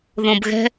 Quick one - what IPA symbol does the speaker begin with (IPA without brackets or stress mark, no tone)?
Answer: ð